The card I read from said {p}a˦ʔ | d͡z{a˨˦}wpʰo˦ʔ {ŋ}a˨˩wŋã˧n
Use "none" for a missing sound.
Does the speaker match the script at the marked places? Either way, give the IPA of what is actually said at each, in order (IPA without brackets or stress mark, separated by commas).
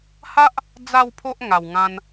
h, a˥˧, ŋ